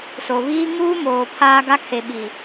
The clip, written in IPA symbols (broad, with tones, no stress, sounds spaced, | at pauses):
s o˨ β iː˦ ŋ uː˦ m oː˨ pʰ aː˦ ɡ a˦ kʰ e˨ ɓ i˨